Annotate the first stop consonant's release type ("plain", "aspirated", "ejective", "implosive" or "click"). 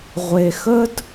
plain